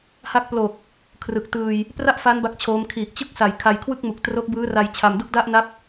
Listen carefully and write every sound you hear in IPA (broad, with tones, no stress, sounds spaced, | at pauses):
h a˦˥ k̚ p l o˨˩ k̚ | kʰ r ɯ˨˩ k̚ t ɯː˧ j | p r a˥˩ ʔ f a˦˥ n b a˦˥ k̚ t͡ɕʰ oː˦˥ m kʰ iː˨˩ k̚ t͡ɕ ɯ˥˩ k̚ s a˨˩ j kʰ a˧ j kʰ w ɯ˥˩ k̚ m u˨˩ k̚ t r o˦˥ k̚ b ɯː˦˥ r a˧ j t͡ɕʰ a˧ m d u˥˩ k̚ d a˥˩ ʔ n a˦˥ p̚